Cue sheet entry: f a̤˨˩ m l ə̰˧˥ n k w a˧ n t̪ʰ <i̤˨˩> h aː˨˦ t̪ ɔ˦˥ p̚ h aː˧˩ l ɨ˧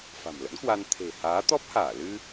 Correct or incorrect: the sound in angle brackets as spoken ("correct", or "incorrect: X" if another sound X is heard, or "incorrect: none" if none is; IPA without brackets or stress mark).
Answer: incorrect: e̤˨˩